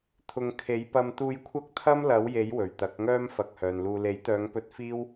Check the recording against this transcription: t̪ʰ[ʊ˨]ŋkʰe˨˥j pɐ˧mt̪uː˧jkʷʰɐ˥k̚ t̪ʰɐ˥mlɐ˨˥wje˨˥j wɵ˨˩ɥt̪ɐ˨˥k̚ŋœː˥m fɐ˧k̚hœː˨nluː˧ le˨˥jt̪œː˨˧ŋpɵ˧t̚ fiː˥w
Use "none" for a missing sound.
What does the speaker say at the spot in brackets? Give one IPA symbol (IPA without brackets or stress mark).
ʊ˨